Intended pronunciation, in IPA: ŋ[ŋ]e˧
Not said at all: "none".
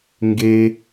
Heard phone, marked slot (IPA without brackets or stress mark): ɡ